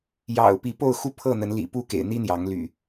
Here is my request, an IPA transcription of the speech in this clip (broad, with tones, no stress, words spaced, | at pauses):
jɑ̰˨˩ʊ̯ pi˨˦po˥˨ʊ̯xu˦ pʰɤ˥˨ n̪ə˨˦nlḭ˨˩ pu˥˨kḛ˨˩ɪ̯n̪i˦ n̪jɑ˨˦ŋly̰˨˩